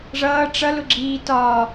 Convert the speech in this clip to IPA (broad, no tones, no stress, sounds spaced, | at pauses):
ʐ ʌː ʈ͡ʂ ʌ l ʊ ɡ͡ǁ iː t ɒ